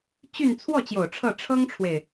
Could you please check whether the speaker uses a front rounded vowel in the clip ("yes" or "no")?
yes